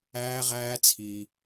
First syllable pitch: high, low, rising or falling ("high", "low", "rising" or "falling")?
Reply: high